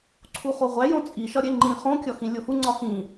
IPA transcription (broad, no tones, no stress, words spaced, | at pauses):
ǀʰuχoʁʷæ jõt͡sʼi ʃɒɾʲeŋ͡ǃĩ χõ kʲɒxĩlʲohu ŋ͡ǀɒhĩ